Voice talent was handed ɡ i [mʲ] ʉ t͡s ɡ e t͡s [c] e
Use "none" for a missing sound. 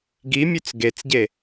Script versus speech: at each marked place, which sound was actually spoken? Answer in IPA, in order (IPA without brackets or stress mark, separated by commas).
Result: mʲ, ɟ